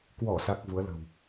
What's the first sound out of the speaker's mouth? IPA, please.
k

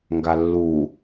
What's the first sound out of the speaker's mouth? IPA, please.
ŋ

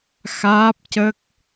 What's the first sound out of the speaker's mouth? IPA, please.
x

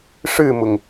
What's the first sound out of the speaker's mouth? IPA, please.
ʂ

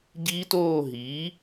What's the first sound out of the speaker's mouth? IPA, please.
ɟ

